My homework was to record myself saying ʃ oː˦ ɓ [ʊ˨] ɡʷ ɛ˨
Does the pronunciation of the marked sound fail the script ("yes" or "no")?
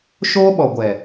yes